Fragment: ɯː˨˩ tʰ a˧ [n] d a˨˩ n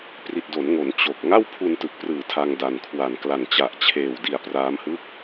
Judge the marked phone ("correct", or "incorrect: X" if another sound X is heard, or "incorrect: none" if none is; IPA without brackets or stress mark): incorrect: ŋ